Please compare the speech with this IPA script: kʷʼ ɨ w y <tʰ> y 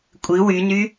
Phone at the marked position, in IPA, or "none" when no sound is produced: n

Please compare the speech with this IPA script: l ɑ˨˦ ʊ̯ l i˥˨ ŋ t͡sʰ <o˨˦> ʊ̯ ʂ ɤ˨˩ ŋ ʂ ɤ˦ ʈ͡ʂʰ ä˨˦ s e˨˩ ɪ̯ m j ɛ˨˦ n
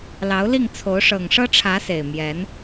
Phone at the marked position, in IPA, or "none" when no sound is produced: o˨˦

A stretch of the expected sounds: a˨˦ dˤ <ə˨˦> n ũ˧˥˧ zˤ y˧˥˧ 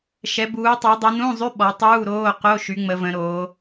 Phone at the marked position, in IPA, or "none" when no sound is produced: ə˨˦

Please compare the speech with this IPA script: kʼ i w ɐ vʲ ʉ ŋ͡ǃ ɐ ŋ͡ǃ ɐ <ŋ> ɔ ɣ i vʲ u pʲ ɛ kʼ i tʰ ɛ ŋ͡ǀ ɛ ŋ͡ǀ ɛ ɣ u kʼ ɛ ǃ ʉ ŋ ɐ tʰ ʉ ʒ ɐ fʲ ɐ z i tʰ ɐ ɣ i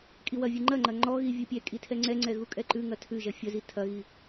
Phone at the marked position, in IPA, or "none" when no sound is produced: ŋ͡ǃ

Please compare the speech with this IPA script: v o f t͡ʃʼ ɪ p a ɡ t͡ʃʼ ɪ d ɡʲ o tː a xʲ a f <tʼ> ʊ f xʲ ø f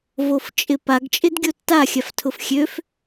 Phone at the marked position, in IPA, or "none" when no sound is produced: tʰ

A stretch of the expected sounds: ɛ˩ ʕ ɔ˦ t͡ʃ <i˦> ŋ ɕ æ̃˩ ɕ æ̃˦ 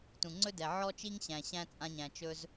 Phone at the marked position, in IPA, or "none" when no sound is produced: i˦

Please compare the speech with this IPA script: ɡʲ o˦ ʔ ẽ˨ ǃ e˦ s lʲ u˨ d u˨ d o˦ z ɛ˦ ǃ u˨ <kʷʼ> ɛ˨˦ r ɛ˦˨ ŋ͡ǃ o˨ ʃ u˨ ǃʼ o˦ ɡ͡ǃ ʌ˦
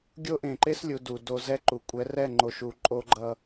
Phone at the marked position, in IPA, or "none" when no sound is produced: kʷʼ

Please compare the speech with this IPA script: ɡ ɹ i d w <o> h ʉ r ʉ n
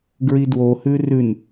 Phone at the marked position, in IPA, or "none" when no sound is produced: o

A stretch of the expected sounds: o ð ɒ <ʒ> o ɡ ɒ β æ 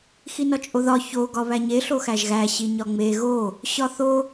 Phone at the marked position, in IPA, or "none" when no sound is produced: ç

